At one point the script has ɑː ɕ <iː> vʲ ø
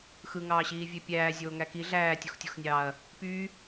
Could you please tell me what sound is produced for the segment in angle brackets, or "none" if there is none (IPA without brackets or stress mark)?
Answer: iː